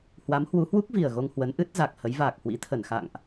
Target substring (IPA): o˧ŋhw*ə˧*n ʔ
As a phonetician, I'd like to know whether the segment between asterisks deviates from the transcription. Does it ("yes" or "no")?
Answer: yes